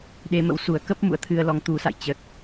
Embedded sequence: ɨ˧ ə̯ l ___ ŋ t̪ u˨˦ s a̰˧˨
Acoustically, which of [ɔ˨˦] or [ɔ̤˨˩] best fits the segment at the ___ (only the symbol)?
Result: ɔ˨˦